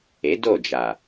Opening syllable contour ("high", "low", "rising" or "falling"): rising